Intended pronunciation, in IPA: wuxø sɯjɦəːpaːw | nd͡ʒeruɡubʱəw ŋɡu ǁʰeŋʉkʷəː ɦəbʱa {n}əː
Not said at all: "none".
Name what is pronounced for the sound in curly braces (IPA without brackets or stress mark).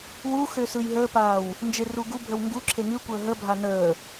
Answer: n